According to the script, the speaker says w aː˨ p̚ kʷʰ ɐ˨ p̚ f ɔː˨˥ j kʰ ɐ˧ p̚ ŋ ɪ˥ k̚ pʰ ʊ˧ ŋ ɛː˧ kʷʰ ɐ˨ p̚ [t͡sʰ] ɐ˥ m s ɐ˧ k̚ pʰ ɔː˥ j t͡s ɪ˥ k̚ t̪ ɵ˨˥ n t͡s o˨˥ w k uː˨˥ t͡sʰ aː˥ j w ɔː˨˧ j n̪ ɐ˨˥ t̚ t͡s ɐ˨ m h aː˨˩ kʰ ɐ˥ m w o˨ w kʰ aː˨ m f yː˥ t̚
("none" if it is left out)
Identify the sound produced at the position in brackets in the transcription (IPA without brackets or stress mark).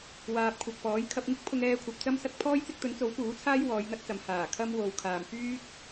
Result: t͡s